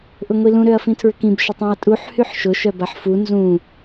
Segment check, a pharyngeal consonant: present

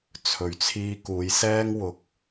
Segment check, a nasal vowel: absent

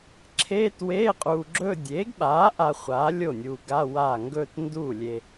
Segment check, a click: present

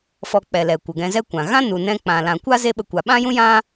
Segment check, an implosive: present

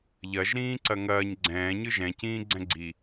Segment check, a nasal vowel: present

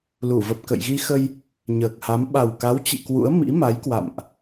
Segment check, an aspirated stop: absent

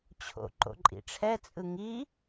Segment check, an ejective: present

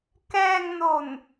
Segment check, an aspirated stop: absent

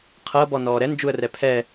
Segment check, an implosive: absent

